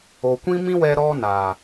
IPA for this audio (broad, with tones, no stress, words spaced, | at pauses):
o˨kʷĩ˦mĩ˦wɛ˧ ɾɔ˦naː˨